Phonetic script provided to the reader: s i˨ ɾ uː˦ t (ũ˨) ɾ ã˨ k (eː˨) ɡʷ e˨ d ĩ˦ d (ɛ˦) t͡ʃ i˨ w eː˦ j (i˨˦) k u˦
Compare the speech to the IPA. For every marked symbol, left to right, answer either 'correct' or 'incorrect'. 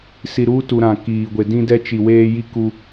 incorrect, incorrect, correct, incorrect

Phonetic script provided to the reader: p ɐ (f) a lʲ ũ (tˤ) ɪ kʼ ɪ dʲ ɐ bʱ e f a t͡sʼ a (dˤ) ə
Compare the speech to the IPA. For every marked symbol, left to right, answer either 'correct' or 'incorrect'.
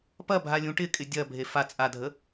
incorrect, incorrect, incorrect

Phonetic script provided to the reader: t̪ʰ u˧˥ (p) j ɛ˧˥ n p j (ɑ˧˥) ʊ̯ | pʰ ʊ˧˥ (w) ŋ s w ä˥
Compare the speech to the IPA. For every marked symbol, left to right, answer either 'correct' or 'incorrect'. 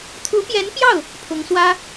correct, incorrect, incorrect

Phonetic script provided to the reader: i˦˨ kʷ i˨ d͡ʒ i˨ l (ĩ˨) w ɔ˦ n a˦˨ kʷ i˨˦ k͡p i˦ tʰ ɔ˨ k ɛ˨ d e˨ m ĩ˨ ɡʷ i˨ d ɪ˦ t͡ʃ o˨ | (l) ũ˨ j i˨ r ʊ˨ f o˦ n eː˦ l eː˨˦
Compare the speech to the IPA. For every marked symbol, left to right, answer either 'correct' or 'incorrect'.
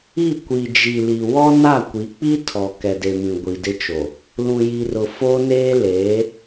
incorrect, correct

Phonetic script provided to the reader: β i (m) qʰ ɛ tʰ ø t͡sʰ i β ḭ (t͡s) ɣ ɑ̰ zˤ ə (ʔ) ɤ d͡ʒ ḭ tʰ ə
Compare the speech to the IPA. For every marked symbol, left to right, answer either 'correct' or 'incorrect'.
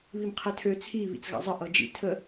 correct, correct, correct

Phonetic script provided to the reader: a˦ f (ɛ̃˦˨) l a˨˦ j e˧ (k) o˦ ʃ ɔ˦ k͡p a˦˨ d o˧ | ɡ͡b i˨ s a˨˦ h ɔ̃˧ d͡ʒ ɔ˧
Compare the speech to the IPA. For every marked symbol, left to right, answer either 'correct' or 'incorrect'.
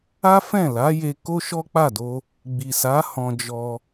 correct, correct

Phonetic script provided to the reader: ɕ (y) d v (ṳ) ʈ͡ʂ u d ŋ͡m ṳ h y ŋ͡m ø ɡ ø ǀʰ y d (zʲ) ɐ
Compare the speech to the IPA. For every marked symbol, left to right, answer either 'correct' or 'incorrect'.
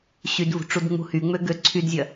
correct, correct, correct

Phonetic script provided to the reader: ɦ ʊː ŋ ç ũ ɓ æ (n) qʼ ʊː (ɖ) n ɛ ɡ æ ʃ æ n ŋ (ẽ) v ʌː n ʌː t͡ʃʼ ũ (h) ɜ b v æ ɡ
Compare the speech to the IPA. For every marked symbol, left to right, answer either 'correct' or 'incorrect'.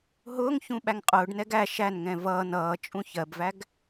incorrect, correct, incorrect, incorrect

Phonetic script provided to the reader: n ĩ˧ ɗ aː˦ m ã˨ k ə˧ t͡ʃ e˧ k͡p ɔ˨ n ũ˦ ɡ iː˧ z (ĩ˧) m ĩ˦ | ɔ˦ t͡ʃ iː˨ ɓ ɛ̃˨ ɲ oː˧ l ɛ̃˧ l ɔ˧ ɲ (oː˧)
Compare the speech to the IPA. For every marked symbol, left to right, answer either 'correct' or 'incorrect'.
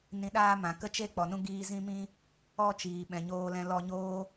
incorrect, correct

